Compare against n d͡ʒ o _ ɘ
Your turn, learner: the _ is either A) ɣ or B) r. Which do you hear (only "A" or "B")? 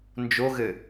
A